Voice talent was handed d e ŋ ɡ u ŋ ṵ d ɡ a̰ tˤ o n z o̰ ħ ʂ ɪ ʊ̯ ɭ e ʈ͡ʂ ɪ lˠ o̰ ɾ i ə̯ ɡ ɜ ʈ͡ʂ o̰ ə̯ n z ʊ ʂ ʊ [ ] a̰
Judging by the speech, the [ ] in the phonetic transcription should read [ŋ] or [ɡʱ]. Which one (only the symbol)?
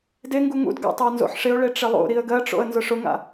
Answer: ŋ